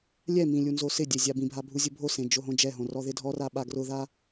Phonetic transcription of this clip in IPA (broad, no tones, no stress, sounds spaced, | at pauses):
lʲ ɛ m ĩ lʲ u n z o s ɪ dʲ e zʲ a b ĩ bʱ a bʱ u zʲ ʊ bʱ o s ẽ d͡ʒ o ɦ õ d͡ʒ ɛ ɦ õ r ɔ ð ɪ dʱ ɔ r a ɓ a ɡ r ʊ ð a